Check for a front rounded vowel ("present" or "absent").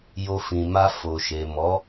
absent